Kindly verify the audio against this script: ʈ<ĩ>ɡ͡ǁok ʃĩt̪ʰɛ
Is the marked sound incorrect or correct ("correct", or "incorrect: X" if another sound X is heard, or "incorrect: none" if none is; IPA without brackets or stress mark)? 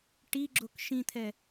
incorrect: i